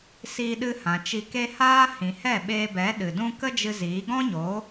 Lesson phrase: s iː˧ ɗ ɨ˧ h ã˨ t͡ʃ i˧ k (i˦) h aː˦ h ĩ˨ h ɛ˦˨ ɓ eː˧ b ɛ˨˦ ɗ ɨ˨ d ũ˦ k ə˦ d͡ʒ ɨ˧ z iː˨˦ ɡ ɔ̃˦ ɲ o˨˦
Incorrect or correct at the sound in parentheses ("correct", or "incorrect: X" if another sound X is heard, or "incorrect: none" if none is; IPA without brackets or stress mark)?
incorrect: e˦